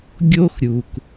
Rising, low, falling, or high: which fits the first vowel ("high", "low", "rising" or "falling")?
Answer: high